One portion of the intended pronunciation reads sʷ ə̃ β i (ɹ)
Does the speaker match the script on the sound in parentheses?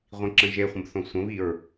yes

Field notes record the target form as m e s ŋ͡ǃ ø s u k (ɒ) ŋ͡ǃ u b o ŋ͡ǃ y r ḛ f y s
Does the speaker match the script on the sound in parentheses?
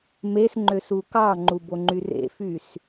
no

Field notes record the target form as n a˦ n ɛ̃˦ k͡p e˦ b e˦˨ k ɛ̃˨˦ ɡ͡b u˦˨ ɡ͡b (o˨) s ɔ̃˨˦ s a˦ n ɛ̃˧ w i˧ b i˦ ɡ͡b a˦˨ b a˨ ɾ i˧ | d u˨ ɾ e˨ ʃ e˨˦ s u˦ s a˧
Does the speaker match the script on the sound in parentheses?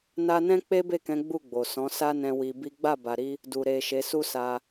yes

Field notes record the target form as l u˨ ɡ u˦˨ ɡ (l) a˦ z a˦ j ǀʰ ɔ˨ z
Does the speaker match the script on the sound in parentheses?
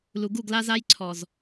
yes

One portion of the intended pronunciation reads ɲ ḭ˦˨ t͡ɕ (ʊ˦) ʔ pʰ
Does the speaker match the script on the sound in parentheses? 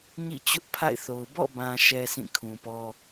yes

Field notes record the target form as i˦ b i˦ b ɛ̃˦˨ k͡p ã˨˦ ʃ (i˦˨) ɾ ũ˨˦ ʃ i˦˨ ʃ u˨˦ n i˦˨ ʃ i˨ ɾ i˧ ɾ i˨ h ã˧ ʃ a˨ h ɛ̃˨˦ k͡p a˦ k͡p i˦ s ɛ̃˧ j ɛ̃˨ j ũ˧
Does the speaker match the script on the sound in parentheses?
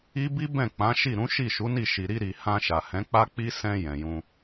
yes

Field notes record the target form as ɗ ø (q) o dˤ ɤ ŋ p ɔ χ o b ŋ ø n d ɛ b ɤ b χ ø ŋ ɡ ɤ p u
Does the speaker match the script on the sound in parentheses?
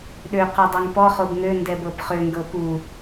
yes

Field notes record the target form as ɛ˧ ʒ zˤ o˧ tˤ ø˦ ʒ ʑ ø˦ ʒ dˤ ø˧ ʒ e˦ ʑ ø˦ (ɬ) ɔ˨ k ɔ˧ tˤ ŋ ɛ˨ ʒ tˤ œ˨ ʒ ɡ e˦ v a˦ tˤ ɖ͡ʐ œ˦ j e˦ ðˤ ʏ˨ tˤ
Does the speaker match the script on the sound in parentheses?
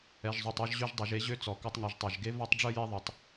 no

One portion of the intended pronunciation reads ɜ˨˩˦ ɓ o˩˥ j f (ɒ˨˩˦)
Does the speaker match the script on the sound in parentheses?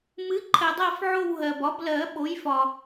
no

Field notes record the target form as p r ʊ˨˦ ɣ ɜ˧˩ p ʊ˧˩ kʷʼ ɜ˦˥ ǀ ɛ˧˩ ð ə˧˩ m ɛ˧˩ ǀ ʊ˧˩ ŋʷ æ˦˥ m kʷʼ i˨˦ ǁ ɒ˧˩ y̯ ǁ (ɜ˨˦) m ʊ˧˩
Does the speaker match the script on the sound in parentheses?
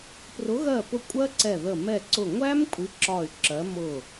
yes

